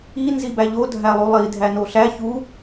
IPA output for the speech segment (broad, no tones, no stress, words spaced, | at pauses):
i nzibæʎo dʱælˠulˠi dʱænoɬæ çu